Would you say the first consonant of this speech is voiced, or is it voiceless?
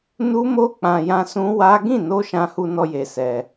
voiced